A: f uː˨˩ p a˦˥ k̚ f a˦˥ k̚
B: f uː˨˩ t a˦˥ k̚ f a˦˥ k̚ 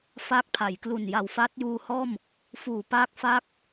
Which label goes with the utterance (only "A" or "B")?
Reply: A